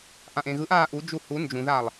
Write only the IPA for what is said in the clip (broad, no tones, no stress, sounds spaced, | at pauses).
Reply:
ʔ ã ʔ ẽ ɣ ɯ ʔ aː ʔ u d͡ʒ u h u n d͡ʒ ũ ð a lˠ